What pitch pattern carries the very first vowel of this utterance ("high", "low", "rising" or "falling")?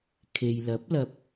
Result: low